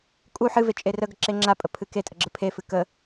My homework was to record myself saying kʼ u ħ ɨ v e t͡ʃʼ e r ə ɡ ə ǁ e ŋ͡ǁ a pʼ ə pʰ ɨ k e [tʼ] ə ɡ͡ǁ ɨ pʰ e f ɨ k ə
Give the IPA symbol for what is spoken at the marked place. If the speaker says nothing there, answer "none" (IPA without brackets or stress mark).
tʼ